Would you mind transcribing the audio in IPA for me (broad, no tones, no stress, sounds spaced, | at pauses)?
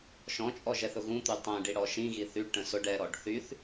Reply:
ʃ ɔ̃ t͡ʃʼ ɔ ʒ ɛ θ ʊ ɣ ũ t̪ y tˤ ɛ̃ ɖ i ɽ ɔ ʃ ĩ ɣ i θ y ɖ ʈ ə̃ s ʊ ɖ ɛ ɾ ɔ ɖ θ y θ